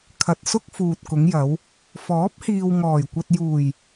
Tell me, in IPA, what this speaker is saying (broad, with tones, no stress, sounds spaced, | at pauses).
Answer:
kʰ ɐ˨ t̚ s ʊ˥ k̚ f uː˨ t̚ k ʊ˨˧ ŋ j ɐ˨˧ w | f ɔː˨˥ p̚ h iː˨ w ŋ ɔː˨˩ j kʷ ɐ˧ t̚ j uː˨˩ j